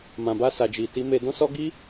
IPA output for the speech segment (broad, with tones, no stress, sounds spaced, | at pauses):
m ã˨ b a˧ s a˨ d͡ʒ i˨ t i˨˦ m e˧ d ɔ̃˦ s ɔ˦ ɡ i˦